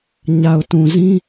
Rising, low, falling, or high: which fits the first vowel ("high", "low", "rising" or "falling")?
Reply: low